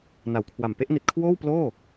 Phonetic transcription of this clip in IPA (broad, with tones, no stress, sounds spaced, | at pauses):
n a˩˦ w kʰ w a˨˩ m p e˥˩ ʔ n i˨˩ t̚ kʰ w oː˥˩ w p l oː˥˩